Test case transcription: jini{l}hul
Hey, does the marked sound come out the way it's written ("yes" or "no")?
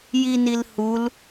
yes